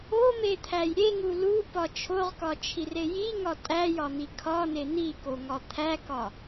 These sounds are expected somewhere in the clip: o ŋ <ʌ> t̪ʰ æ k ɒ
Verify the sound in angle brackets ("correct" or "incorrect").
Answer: incorrect